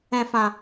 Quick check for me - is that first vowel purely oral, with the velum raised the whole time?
no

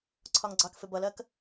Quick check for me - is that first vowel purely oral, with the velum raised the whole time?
yes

